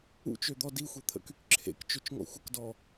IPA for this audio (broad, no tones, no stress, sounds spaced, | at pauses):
ṵ t͡ʃ ø d̪ ɔ d i xʷ e t̪ʰ ə̰ k y k ǁʰ ḛ k t͡ʃ ø t͡ʃ ŋ ɔ̰ xʷ ə k d ɔ